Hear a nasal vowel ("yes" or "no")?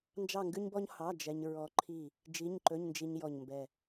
no